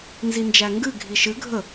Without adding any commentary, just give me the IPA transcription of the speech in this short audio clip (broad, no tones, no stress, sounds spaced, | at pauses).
n z i n d͡ʒ æ ŋ ɡ ɨ ɡʱ i ʃ ɨ ɡʱ ə